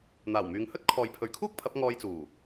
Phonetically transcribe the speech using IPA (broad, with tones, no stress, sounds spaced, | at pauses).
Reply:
n̪ aː˨˩ w m yː˨˧ ŋ h ɵ˥ t̚ kʰ ɔː˨ j pʰ ɵ˨˧ ɥ kʰ uː˥ k̚ pʰ ɐ˨˥ p̚ ŋ ɔː˧ j t͡s uː˨˩